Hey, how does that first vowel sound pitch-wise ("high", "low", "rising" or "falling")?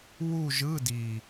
falling